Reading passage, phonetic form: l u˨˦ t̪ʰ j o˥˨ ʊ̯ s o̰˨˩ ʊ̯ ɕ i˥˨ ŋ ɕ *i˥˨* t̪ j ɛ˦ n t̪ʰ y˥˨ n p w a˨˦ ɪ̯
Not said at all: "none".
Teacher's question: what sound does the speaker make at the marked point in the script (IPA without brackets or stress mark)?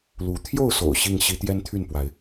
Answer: i˦